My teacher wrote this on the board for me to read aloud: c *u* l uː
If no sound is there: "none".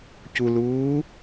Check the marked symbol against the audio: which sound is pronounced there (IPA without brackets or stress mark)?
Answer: u